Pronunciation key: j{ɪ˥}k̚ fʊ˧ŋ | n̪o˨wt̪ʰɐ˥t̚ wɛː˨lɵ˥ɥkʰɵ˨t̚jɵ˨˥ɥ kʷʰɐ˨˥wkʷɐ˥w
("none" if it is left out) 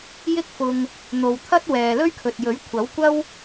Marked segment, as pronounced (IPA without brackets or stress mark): ɪ˥